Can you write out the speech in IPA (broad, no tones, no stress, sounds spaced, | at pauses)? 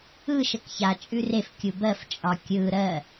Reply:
ɯ ʃ ə k ç a t͡ʃʼ ʉ r e f kʲ u b ɜ f t͡ʃʼ ɒ kʲ ɯ ɾ ɜ